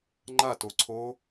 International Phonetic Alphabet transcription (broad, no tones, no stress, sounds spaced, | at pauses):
ŋ͡ǃ a t o ǀʰ o